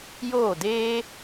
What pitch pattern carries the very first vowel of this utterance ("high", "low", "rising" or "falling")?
falling